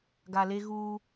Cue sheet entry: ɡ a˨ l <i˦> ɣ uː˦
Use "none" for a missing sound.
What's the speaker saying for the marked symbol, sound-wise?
e˦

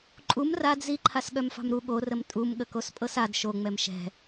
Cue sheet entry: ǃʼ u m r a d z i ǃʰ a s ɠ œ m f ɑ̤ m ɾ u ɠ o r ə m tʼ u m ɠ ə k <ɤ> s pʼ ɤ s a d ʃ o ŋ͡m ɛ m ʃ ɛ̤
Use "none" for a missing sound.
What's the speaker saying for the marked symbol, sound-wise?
o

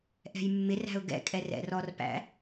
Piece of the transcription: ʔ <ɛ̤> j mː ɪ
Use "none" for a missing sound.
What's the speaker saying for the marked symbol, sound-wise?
ɛ̤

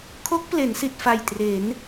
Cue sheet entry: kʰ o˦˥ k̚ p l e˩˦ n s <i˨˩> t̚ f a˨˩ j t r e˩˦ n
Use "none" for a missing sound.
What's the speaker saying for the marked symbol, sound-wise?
i˨˩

